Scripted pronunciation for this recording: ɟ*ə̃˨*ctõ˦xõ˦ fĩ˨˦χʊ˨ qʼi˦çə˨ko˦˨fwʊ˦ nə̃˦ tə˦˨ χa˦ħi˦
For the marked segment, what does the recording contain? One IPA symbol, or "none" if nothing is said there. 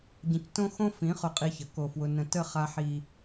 ə̃˨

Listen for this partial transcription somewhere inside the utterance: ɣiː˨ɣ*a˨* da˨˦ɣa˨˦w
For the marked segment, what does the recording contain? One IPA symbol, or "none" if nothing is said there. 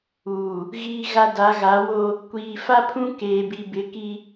a˨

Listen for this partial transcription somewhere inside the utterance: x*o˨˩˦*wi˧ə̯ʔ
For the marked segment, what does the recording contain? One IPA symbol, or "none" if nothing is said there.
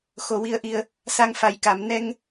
o˨˩˦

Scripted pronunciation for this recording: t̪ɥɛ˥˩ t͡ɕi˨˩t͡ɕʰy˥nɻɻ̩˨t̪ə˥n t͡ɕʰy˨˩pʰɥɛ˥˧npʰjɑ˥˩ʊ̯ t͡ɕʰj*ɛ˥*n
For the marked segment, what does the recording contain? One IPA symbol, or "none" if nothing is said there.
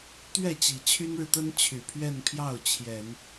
ɛ˨˩˦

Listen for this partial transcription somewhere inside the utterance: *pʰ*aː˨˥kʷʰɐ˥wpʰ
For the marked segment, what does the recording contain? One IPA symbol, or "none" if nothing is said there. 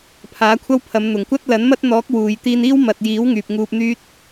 pʰ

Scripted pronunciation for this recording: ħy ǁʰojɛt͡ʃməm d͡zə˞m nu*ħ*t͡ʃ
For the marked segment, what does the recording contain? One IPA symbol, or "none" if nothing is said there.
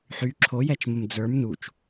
none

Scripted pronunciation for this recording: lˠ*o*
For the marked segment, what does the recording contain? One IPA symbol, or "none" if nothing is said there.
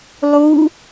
u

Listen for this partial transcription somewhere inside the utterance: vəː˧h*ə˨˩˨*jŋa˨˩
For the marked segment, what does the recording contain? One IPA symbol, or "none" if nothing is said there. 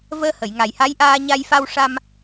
ə˨˩˨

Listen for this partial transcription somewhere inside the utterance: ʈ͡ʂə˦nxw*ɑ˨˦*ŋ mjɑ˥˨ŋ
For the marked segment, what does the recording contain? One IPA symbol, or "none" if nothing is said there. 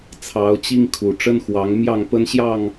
ɑ˨˦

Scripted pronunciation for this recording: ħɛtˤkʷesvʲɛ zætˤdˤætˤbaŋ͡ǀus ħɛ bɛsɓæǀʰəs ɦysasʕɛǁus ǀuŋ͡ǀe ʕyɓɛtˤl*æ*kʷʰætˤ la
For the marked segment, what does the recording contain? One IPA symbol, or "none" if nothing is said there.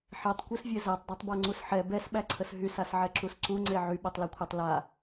a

